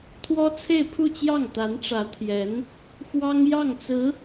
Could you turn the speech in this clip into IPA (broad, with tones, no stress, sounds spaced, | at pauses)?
t̪ʰ w ɔ˥ t͡sʰ e˥˧ ɪ̯ pʰ u˥˧ t͡ɕ j ɑ˥˩ ŋ t̪ a˧˥ n ʈ͡ʂ ä˧˥ t̪ʰ j ɛ˧˥ n | x w ɑ˥ ŋ j ɑ˥˩ ŋ t͡s ɹ̩˧˥